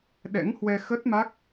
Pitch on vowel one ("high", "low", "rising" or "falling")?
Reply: rising